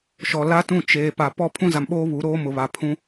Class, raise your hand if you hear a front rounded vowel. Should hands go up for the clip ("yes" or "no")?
no